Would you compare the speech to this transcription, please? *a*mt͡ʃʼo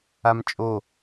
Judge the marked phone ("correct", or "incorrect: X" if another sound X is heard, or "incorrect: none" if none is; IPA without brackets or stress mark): correct